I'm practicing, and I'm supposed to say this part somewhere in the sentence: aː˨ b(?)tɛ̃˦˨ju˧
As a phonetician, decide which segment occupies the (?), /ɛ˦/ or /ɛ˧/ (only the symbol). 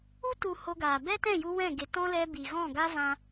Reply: ɛ˦